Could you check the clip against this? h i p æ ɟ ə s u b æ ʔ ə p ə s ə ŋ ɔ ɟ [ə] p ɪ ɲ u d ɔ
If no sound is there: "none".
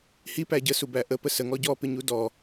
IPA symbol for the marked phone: ɔ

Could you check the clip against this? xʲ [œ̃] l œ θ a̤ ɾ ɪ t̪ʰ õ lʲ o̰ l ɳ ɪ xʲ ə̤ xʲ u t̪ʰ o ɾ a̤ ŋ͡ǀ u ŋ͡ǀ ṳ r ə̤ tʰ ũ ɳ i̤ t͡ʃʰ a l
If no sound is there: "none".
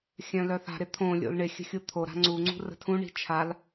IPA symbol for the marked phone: œ̃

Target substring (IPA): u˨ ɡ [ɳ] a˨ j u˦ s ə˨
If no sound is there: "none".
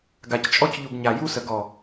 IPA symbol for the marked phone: ɲ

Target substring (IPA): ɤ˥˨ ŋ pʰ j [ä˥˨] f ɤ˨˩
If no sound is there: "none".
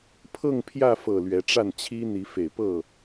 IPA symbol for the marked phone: ä˥˨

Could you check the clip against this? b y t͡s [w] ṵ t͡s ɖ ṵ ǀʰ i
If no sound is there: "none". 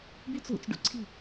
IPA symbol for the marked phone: w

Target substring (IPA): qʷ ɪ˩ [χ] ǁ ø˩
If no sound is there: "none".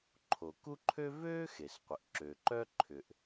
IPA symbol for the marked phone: ʔ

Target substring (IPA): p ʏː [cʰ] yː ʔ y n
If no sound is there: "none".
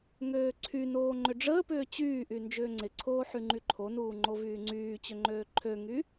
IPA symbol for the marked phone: t͡ɕ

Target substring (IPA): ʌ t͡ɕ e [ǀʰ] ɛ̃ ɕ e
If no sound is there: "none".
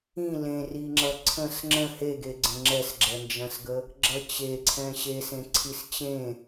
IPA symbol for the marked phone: ǀʰ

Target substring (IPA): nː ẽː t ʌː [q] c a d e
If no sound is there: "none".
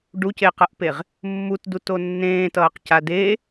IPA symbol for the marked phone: q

